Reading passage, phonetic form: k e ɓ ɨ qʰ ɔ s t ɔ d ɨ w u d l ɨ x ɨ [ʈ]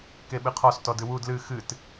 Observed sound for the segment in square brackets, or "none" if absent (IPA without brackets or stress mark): t